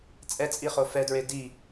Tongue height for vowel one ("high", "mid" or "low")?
mid